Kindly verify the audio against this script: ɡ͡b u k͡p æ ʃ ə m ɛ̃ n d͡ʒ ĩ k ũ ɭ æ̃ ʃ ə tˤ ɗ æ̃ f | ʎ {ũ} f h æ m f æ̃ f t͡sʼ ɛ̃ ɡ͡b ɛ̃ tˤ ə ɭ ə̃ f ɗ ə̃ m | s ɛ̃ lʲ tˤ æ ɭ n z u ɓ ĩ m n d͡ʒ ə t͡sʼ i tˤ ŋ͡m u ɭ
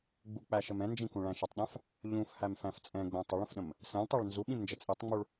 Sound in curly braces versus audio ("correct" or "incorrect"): correct